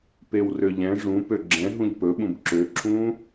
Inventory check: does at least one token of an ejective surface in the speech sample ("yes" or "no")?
no